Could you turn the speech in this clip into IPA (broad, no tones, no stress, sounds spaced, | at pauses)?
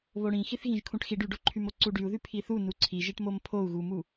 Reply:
β o ɽ ĩ x i θ ɣ ĩ ʒ kʰ ũ ʈ x i ɖ y ɖ o ǃʰ y m o ǀ u ɖ y u̯ ð y pʰ i θ u n u ǀʰ i ʒ i ʈ m o m pʰ o u̯ ɣ u m u